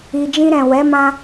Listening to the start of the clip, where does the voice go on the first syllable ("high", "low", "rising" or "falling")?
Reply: low